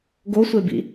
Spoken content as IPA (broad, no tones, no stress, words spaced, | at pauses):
ɡosʷebḭ